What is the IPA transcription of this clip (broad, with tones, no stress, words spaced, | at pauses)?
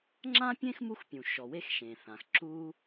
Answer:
ŋ͡ǁã˥pʲẽ˥xmu˦xpʲũ˩ ʃɔ˨we˦x ʃẽ˩θã˩x ǁu˦